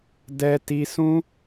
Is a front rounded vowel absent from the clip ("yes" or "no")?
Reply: yes